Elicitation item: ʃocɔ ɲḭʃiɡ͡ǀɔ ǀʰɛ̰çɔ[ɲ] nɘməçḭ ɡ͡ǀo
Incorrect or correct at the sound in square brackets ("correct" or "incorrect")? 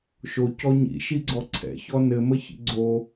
incorrect